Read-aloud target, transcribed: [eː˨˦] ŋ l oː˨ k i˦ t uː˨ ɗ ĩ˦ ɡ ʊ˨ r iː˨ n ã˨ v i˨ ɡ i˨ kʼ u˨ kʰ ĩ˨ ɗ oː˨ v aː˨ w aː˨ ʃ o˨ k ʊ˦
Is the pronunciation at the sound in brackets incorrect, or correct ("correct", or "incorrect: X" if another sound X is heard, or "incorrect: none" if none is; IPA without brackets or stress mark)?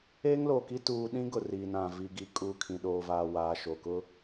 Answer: incorrect: eː˦